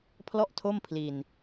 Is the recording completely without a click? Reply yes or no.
yes